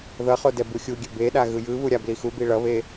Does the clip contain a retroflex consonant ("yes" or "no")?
yes